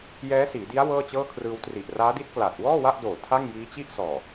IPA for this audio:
jɛː˦˥siː˩˦di˦˥a̯ wɤː˥˩t͡ɕɤː˥˩kʰrɯː˧w tri˨˩ʔraː˦˥di˦˥t̚kla˨˩t̚ wɔː˥˩wa˥˩ʔdoː˨˩ tʰa˥˩ŋjiː˦˥t͡ɕi˥˩ʔ sɔː˨˩

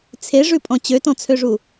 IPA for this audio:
t͡sʰeʐʉpʼɔ̃ t͡ɕøtɔ̃t͡sʰøʐu

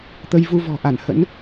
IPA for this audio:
t̪ə˧jvu˧ vɔ̤˨˩ʔa˧˩nhə̰˧˥n

